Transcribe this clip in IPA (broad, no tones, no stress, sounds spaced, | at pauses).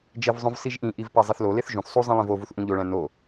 d͡ʒ e v zˤ õ v s i ʒ ʔ ĩ ʔ i v p æ zˤ e θ l o l e θ ʒ ũ θ sˤ u zˤ ĩ lˠ ĩ v o v u θ ʔ ũ ʎ o ɭ æ̃ n o